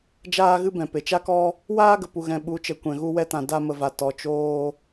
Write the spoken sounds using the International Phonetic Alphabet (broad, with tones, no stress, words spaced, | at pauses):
d͡ʒaː˦ɣɨ˦bɛ̃˨ pe˨t͡ʃa˦kɔ˦ | waː˦ɡə˨pu˨ɣɛ̃˨ ɓu˨˦ t͡ʃə˨˦ kʷɛ̃˨ɣu˧ wɛ˧tã˨ da˧ mə˨va˨ tɔ˨t͡ʃoː˧